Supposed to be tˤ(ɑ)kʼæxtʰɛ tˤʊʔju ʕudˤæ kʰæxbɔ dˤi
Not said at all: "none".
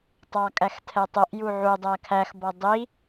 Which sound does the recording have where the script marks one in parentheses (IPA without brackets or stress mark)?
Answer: ɑ